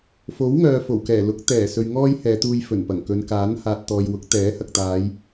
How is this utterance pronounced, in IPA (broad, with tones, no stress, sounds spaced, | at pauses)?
f o˨˥ w ŋ œː˨ f o˨˩ w k ɛː˨˩ l ʊ˨˥ k̚ t̪ ɛː˨˩ s ɵ˨ ɥ ŋ ɔː˥ j h ɛː˨˧ t̪ uː˧ j f ɵ˨˩ n p ɐ˨˩ ŋ k ɵ˨˧ n k aː˨˥ n h aː˨ t̚ t̪ ɔː˨ j w ʊ˨˥ k̚ t̪ ɛː˨˥ h ɐ˨ k̚ t̪ aː˨˧ j